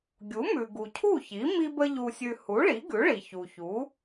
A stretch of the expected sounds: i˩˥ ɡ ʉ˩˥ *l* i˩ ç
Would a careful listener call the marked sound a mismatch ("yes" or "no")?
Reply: yes